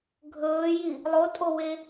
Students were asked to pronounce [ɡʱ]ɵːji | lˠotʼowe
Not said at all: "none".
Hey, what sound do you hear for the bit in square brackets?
ɡʱ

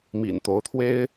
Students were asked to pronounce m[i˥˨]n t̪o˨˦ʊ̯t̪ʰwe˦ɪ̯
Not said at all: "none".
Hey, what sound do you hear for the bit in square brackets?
ḭ˨˩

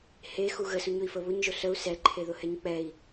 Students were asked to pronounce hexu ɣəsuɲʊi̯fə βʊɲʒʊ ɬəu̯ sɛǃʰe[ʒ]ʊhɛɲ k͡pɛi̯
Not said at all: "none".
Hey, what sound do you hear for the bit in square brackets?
ð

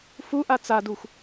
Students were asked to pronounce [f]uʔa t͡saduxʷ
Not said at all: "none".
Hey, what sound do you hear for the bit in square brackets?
f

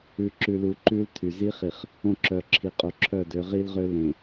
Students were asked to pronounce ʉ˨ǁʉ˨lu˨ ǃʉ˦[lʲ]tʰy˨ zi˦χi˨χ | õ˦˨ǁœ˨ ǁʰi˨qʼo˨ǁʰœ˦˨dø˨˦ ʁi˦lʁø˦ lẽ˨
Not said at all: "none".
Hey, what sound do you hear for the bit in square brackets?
l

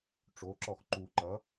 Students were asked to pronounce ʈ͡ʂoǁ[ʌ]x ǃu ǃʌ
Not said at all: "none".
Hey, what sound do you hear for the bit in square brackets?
ɔ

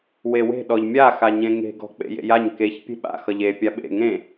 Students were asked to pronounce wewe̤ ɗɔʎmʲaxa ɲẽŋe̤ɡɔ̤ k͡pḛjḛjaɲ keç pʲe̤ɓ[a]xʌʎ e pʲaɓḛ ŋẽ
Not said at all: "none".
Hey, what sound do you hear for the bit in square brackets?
a̰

